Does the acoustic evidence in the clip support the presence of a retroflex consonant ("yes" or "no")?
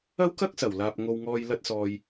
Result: no